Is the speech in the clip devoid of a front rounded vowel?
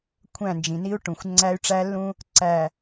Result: no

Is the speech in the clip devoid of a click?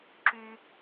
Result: no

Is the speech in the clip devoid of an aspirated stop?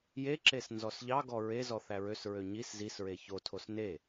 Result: no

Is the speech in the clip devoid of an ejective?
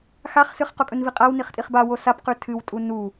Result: no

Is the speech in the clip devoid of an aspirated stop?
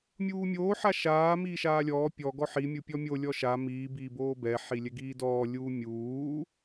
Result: yes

